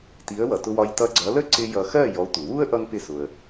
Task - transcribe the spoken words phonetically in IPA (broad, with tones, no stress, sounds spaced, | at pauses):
t i˩˥ ə̯ w ʌ˩ t ʊ˧ w ɒ˧ j t ʌ˧ ɡ͡ǀ ʌ˩˥ l ə˥ ǀ ɪ˧ j ʌ˧ x ɜ˥˩ j ɔ˩˥ tʷ ɪ˩ w u˥ ə̯ ʔ ʌ˥ ŋ p ɪ˥˩ s ʊ˩ ə̯